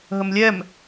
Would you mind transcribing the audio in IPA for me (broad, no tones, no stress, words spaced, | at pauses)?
ɦəmlʲɛm